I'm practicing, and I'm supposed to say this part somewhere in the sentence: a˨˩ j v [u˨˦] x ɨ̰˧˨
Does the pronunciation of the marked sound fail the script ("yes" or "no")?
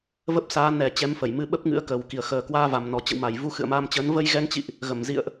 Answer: yes